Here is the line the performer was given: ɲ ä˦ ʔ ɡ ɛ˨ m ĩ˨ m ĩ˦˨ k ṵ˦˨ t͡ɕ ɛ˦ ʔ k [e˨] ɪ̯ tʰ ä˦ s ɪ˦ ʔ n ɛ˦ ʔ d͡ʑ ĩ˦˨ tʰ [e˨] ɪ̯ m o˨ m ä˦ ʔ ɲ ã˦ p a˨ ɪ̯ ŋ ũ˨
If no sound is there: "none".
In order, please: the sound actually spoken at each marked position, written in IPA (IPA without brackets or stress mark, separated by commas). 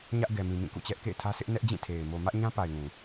ḛ˦˨, e˨